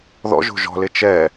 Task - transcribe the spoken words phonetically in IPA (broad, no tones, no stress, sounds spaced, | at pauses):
ð ɔ̰ ʒ o̤ ʒ ɔ̤ l ɪ t͡ʃ ɛ